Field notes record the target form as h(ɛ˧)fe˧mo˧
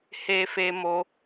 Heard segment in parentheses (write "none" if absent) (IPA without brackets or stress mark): e˧